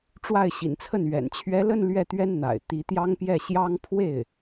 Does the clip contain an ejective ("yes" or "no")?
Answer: no